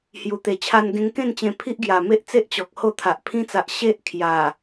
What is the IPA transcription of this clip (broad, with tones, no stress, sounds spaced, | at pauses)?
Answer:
h j u˨˩ t̪ e˨˩ t͡ɕʰ a˧ n ɡ ẽ˧ ŋ k ẽ˥˧ n t͡ɕ ẽ˧ pʰ i˦ ʔ ɡ j a˨˩ m e˦ ʔ t͡s e˦ ʔ t͡ɕ ɔ˨ k̚ h o˥˧ t̪ʰ a˨ ʔ pʰ ĩ˧ t͡s a˨ ʔ ɕ e˦ ʔ kʰ j a˨˩